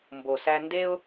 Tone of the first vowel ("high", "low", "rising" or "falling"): low